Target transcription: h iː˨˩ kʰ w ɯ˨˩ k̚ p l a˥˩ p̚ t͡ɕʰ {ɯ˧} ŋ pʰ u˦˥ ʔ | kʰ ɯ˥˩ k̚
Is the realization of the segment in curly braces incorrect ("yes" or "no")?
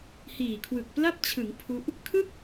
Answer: yes